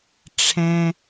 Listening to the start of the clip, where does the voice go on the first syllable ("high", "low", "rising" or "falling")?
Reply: low